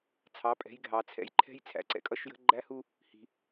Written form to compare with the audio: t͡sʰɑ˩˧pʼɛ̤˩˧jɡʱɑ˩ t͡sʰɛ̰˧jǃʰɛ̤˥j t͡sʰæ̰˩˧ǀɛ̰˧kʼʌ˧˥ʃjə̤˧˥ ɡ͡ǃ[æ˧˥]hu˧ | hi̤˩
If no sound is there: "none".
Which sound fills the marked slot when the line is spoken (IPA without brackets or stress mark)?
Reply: æ˧˥